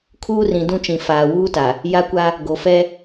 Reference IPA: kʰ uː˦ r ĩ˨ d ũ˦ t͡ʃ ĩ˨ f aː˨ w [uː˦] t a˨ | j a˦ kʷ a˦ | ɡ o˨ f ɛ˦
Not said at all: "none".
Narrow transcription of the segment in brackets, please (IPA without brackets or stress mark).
uː˦